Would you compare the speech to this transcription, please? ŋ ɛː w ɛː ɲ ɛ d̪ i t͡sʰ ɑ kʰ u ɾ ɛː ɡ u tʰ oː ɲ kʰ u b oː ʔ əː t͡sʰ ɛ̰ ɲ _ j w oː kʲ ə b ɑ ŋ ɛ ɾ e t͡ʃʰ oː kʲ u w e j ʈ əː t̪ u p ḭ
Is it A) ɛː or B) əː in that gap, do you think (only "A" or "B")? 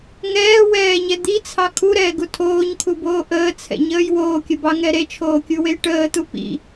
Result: B